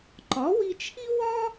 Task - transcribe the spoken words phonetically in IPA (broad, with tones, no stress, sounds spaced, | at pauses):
ǃ ɒ˩˥ w i˧ t͡ʃʰ i˥ w ɒ˥